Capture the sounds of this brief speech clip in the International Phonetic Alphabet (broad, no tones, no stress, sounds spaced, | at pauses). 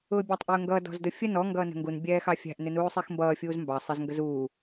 ʊː bʲ ɑ tˤ ʔ ʊː ŋ ɡ ʌ d ɔ̤ z d ʊ fʲ ə n ɔ ŋ ɡ ʌː n ə̤ ŋ ɡ u n bʲ ɛː x ɑ fʲ æ̤ ʔ n ɪ n uː sˤ i x m b ʌː fʲ uː z m b ɑ sˤ ɪ z ŋ ɡ ə z uː